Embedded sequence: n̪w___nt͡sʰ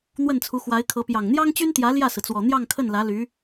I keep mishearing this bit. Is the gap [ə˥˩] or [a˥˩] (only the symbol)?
ə˥˩